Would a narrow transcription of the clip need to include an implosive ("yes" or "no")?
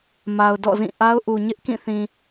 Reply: no